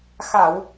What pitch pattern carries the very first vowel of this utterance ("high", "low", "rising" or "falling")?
low